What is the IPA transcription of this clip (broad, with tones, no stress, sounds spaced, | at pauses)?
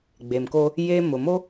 ɡ͡b e˨ m k o˦ | j e˦ m ʊ˨ m o˦